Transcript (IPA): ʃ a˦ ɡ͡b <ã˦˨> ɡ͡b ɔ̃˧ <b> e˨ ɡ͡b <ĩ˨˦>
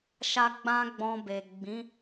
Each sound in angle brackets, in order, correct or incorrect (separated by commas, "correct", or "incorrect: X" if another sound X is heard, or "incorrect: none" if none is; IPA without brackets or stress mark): incorrect: ã˦, correct, correct